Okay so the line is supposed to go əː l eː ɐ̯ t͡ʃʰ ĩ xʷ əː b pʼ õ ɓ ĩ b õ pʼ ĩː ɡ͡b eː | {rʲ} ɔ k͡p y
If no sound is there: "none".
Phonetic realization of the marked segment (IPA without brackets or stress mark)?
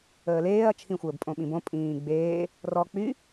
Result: r